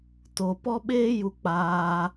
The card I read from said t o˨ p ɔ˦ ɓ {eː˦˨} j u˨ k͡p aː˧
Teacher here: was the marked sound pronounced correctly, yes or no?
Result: no